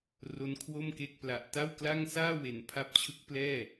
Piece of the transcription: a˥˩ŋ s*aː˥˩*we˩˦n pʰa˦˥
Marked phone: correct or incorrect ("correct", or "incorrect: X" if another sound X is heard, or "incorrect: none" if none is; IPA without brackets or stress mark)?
correct